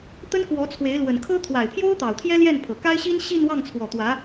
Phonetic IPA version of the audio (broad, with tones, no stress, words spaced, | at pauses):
t̪ə˥nkwɔ˧˥t͡sʰwe˧˥ɪ̯ lwə˨˩nkʰɤ˥ t̪ʰwa˨˩ɪ̯pʰjo˥ʊ̯t̪ɑ˨˩ʊ̯ t̪ʰjɛ˥ljɛ˥˩npʰɤ˨˩ka˥ɪ̯ ɕi˥n ɕi˥˧n wɑ˥˩ŋt͡sʰwɔ˨˩ t̪wä˧˥